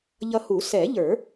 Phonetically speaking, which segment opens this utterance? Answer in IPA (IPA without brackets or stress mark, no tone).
ʎ